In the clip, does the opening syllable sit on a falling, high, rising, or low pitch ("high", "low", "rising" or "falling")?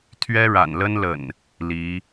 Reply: high